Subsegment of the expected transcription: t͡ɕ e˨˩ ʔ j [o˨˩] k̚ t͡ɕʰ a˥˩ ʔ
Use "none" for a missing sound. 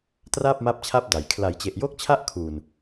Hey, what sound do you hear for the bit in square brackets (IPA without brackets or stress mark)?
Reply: o˦˥